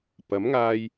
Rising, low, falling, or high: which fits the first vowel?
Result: rising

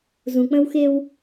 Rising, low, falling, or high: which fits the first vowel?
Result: low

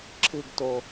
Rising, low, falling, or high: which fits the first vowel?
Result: falling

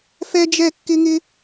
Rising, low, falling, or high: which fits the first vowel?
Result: high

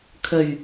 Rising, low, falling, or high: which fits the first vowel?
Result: low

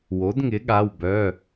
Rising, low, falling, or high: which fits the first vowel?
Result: rising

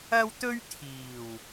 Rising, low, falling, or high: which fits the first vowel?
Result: high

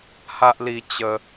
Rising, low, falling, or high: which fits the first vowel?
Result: high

